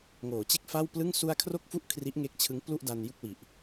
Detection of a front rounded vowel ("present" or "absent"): absent